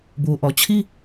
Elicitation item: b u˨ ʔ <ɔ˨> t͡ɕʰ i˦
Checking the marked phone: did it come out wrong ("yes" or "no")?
no